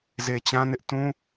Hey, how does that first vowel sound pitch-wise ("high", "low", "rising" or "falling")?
low